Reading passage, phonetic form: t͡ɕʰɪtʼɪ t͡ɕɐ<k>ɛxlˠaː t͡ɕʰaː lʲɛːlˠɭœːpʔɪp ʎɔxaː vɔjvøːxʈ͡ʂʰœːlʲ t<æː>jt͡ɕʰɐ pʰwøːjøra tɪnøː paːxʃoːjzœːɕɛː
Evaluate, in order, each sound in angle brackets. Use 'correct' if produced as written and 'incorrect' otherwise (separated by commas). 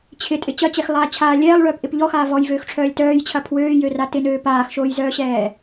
incorrect, incorrect